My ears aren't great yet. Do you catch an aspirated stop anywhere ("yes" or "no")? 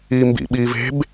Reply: no